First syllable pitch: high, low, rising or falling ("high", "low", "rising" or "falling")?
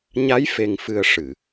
rising